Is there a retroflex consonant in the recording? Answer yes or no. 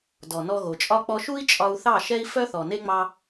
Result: no